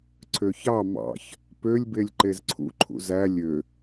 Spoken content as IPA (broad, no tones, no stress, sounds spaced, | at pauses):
ǀʰ ø ç ɑ m ɑ̰ ç | p ø lʲ b e lʲ ǃ e z ǀʰ ṵ ǃʰ ṵ z æ lʲ ø